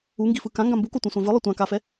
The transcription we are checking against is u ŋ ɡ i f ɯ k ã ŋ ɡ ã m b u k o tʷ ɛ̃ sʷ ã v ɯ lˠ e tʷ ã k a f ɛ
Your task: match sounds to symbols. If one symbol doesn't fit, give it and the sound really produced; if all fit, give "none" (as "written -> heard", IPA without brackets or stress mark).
none